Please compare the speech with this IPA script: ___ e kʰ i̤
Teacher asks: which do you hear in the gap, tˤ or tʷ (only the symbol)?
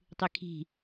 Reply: tˤ